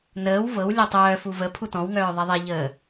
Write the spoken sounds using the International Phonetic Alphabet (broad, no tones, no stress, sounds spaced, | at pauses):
n əː w v ɤ w lʲ ɔ tˤ œː f u v ə pʰ u t ɔ̃ w ŋ œː ðˤ ɛ ðˤ ɛ ʎ əː